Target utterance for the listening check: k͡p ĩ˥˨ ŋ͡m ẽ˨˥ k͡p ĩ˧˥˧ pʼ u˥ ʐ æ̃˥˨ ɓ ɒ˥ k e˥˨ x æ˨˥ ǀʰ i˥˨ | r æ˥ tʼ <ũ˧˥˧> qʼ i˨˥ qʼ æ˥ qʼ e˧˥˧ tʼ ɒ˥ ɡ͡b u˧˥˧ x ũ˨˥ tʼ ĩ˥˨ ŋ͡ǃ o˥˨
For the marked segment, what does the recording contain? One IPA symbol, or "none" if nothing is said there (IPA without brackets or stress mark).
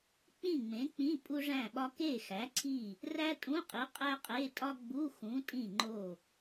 ũ˧˥˧